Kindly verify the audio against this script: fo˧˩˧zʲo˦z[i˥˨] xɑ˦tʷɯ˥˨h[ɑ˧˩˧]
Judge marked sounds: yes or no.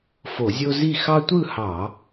yes, yes

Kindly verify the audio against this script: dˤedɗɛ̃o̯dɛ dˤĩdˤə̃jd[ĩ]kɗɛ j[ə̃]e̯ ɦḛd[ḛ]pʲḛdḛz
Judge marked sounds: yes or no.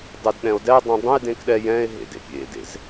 no, no, yes

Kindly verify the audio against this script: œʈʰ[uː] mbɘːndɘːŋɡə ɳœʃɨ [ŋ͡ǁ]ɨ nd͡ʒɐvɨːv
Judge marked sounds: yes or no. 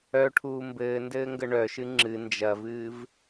yes, yes

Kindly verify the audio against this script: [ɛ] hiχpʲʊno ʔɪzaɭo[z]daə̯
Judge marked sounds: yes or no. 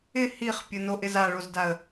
no, yes

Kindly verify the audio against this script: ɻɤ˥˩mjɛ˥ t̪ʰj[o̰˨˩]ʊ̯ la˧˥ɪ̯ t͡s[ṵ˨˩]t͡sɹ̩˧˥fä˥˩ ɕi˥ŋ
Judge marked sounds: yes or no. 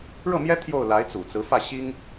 no, yes

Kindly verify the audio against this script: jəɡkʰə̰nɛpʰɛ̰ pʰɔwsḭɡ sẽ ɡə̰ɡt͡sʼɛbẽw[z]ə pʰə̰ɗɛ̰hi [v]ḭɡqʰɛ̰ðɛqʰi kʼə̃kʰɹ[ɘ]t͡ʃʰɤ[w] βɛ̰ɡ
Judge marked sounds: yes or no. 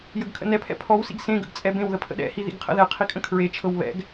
no, no, no, yes

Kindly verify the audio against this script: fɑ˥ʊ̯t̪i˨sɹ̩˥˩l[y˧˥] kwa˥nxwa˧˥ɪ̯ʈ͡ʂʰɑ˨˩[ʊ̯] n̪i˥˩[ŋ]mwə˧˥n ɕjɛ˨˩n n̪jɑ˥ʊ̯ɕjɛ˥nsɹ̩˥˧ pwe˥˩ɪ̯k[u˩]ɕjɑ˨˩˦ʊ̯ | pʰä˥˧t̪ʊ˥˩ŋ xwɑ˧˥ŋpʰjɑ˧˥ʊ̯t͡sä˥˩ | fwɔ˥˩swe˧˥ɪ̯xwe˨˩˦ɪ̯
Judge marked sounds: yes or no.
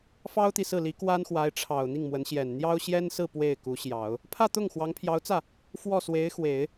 no, yes, yes, no

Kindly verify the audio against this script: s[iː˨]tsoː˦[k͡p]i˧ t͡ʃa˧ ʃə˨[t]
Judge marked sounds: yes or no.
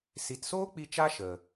no, yes, no

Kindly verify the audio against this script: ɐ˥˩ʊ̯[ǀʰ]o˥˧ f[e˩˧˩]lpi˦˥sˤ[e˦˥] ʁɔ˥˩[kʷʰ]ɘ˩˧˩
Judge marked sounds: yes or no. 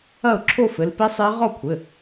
no, no, yes, yes

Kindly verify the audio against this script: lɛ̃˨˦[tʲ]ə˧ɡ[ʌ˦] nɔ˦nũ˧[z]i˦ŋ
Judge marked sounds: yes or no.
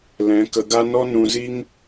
no, no, yes

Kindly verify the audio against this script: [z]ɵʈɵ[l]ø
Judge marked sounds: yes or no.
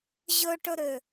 no, no

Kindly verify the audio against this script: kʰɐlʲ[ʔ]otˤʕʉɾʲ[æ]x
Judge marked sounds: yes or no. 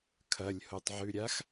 no, no

